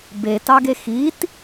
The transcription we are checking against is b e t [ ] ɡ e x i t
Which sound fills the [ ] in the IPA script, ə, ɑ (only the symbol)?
ɑ